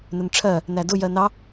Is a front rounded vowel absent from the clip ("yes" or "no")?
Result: yes